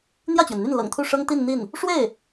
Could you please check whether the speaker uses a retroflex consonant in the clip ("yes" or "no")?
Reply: yes